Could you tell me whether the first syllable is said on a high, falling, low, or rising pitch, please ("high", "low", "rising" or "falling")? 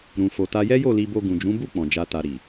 low